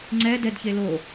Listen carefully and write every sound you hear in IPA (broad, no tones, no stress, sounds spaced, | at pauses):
ŋ͡ǀ ɛ d ɛ d ç e l o